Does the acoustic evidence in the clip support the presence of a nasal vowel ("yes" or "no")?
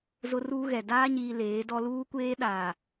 no